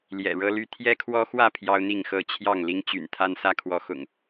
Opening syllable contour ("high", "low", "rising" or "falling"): low